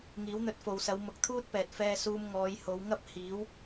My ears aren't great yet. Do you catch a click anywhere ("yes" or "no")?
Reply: no